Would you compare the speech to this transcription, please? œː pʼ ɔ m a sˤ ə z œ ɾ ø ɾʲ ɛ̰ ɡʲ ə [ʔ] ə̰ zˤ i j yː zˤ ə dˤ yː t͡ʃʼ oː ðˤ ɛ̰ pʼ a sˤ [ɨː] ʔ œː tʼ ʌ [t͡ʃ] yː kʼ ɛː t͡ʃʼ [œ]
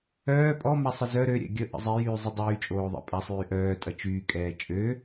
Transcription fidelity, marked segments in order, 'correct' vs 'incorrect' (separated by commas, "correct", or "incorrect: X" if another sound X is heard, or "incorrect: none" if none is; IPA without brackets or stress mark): correct, incorrect: yː, correct, incorrect: ø